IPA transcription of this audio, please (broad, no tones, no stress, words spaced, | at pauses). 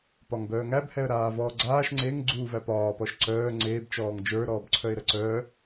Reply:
pɒŋbœːŋæb hɛə̯ɾaːvɔːɡ͡ǀaːʃ ŋ͡ǀeŋ ɡ͡ǀuːvæpɒːpɔʃ ǀœː ŋ͡ǀeːbt͡ʃɔːŋ d͡ʒə˞ɾɔːbǀʰœɪ̯ ɾəǀœ